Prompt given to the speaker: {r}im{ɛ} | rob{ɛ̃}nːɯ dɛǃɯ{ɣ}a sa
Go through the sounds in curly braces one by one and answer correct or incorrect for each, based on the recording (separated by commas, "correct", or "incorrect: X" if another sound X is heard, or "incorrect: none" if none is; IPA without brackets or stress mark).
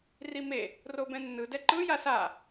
correct, incorrect: e, correct, incorrect: j